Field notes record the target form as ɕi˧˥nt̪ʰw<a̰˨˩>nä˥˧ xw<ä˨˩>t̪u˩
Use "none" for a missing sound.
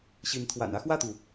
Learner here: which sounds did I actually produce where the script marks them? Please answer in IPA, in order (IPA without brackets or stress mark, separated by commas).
a̰˨˩, ä˥˩